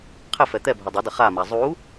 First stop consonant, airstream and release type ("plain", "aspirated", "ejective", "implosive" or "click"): aspirated